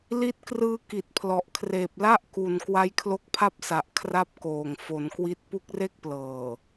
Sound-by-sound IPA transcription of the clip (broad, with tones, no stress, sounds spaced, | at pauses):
l i˦˥ t̚ k r ɯː˦˥ k i˨˩ t̚ pʰ l ɔ˨˩ ʔ kʰ r eː˨˩ p̚ l a˥˩ ʔ k u˨˩ n k w a˦˥ j kʰ l o˦˥ k̚ pʰ a˥˩ p̚ s a˨˩ ʔ kʰ r a˥˩ p̚ k oː˨˩ ŋ f o˩˦ n k w i˦˥ t̚ p u˦˥ k̚ r e˥˩ k̚ p l ɤː˨˩